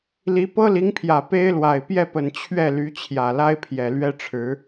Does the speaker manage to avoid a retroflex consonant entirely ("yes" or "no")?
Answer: no